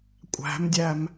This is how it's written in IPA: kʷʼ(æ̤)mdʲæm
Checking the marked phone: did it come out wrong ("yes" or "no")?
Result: no